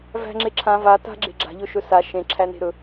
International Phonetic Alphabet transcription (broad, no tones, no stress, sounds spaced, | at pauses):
v æ̤ ŋ͡ǁ e ǁʰ ã v a t a̤ ɡ͡ǁ e̤ ɡ͡ǁ a̤ ʎ ɵ ʃ ɵ s a ʃ ẽ ǁʰ æ n e̤ ɾ ɵ